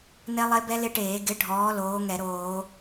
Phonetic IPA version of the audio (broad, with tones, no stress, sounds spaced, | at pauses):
n e˦˥ lˠ e˦˥ b ɛ˦˥ l ɪ˦˥ ʈ eː˧˩˧ ɡ ɪ˨˥ ɖʱ ɔː˨˥ l oː˨˥ ŋ ɛ˧˩˧ ɾ oː˧˩˧